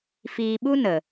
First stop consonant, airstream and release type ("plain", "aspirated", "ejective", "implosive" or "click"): implosive